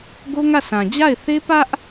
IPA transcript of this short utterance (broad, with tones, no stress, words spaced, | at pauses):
ɡo˦ŋä˦˨sã˨ d͡ʑa˦˨ɪ̯θe˦pä˦ʔ